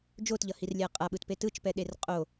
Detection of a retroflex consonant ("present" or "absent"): absent